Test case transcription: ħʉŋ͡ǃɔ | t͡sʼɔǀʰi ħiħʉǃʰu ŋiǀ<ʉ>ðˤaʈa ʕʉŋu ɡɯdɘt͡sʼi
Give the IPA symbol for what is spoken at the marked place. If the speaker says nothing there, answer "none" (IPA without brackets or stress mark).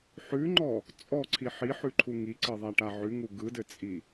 ɘ